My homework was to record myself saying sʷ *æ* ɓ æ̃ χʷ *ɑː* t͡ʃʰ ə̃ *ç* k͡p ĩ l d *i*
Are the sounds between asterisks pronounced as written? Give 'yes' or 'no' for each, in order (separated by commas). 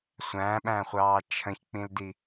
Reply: no, yes, yes, yes